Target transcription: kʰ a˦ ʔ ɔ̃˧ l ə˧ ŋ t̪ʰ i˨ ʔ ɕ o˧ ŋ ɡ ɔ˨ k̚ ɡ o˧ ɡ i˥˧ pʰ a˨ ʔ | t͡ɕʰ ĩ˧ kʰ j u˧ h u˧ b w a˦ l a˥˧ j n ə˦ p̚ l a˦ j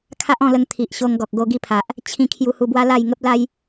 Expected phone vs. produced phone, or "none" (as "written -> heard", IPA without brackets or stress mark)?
n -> ŋ